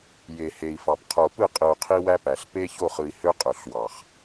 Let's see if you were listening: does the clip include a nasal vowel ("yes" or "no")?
no